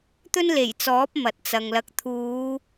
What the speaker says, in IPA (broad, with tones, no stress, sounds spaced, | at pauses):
t̪ ɵ˥ n l e˨˩ j t͡s ɔː˨˥ p̚ m ɐ˨ t̚ t͡s ɐ˨ ŋ l ɐ˧ k̚ t̪ʰ uː˨˧